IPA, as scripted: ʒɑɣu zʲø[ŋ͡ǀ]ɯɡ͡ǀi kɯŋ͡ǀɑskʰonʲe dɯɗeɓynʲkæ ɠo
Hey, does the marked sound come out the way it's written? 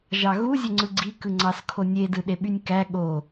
yes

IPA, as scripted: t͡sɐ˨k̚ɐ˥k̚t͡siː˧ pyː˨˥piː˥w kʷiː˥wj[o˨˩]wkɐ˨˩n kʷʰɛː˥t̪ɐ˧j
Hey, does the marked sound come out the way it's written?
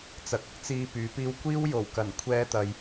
yes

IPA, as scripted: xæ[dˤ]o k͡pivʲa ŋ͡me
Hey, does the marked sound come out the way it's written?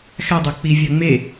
yes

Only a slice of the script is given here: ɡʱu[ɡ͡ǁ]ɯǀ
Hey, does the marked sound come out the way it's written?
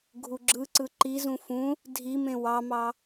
yes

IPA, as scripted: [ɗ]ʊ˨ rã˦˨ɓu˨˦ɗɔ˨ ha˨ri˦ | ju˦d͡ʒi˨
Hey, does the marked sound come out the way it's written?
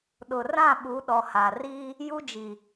yes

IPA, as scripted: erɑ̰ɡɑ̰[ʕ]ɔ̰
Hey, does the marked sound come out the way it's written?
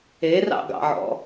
yes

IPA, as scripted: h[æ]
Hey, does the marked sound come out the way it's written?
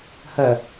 no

